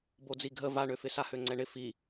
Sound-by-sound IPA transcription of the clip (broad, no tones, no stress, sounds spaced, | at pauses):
b o d͡z i ɡʱ ə v a ɳ ø f ɪ s a h ø ŋ͡ǀ ɛ ɳ ɪ f i